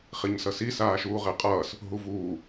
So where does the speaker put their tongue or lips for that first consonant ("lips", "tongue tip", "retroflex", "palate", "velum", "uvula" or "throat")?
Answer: uvula